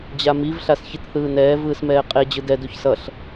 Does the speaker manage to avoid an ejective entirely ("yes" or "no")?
no